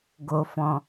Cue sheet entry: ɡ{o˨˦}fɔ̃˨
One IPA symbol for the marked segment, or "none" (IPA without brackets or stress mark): o˨